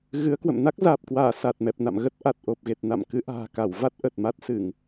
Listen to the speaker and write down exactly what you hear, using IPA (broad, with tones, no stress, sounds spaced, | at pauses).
ɣ ɨ˨˦ ə̯ k w ə̰˧˨ m n a˦˥ k̚ z aː˨˩ p̚ k w aː˧˩ s a˨˩ t̚ m ɛ˨˩ p̚ n a̰˧˨ m ɣ ə˦˥ t̚ ʔ a˨˩ t̚ ʔ o˨˩ p̚ ɣ e˨˩ t̚ n a̰˧˨ m k ɨ˨˦ ʔ a̤ː˨˩ k a˧˩ w v a˦˥ t̚ ʔ ə˨˩ t̚ m a˦˥ t̚ s ɨ˧˩˨ ŋ